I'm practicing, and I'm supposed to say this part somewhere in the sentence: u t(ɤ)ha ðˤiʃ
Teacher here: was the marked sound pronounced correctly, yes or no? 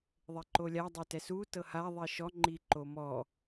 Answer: yes